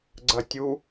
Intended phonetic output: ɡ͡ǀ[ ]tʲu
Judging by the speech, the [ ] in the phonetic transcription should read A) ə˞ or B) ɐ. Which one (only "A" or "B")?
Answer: B